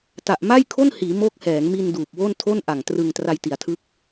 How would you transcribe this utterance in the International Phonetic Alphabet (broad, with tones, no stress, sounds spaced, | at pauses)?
t a˨˩ ʔ m a˥˩ j kʰ o˥˩ n h iː˩˦ m oː˦˥ k̚ h ɛː˩˦ ŋ m i˧ n d uː˨˩ p̚ w o˥˩ n tʰ o˥˩ n ʔ a˨˩ ŋ t r ɯ˧ ŋ t r a˧ j t i˩˦ a̯ tʰ ɯ˦˥ k̚